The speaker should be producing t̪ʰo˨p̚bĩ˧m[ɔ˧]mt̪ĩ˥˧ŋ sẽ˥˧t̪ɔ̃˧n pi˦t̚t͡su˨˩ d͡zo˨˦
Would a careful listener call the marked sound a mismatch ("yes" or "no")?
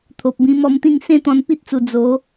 no